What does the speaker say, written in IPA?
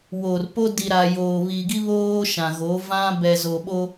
w o˨ r p o˦ d i˨ ɾ a˨ j oː˨ β i˨ ɡ i˦ β oː˦ ʃ ã˨ ɣ o˨˦ v ã˦ b ɛ˨ z o˨ ɓ o˦

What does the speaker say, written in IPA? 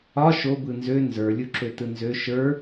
ɒ ʃ o b ɯ n z ø n z ə˞ lʲ u ǁ ø t ɯ n z ø ʃ ə˞

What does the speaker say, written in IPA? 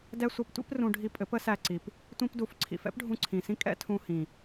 d ɛ˦ sʷ ʌ˧ p tʷ ḭ˦ p r ũ˧ ɖʱ i˧ pʼ ɘ˨˦ p ə˦ s æ˧ ǀ i˨ p | tʷ ĩ˦ p d u˧ f ǀʰ ḭ˨ f ɛ̰˦ p ɖʱ ũ˧ ǀʰ ĩ˨ s ĩ˦ kʼ ɛ̰˦ tʰ ũ˧ h ĩ˨

